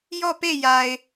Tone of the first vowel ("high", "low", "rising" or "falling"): falling